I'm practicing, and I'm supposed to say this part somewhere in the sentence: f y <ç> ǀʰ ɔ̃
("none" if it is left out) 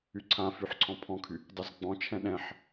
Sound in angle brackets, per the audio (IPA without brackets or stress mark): ħ